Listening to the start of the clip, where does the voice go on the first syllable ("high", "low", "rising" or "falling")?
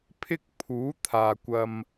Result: high